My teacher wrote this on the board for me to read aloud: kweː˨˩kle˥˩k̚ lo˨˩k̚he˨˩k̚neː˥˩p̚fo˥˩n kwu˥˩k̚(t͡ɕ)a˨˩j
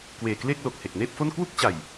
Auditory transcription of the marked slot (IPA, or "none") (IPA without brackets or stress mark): t͡ɕ